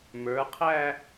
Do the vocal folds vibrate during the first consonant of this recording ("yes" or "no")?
yes